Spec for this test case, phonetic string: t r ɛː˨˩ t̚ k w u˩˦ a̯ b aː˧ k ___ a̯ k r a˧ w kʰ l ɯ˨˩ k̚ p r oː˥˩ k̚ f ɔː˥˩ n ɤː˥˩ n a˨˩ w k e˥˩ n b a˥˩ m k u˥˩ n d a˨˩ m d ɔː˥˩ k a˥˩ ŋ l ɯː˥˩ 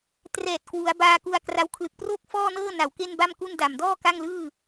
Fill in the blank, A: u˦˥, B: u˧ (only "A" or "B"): B